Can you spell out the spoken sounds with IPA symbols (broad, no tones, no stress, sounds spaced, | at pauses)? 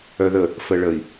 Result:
œ ð ə | f ə ɭ ə i̯